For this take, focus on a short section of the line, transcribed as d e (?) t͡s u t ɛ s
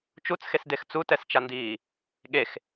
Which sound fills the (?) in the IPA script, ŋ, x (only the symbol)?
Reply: x